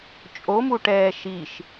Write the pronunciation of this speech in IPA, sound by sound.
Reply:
t͡ʃʼ o m u ʈ ɛː ʃ i ʃ

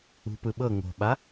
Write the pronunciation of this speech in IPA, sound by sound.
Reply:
ṳ p ɯ ɓ ɤ ŋ o̤ ɓ a

